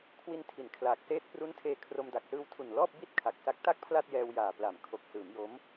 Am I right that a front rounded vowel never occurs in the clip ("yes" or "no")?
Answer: yes